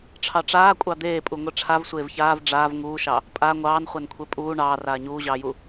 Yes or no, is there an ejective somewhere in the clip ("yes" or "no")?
yes